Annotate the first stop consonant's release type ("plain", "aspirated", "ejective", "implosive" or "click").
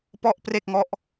plain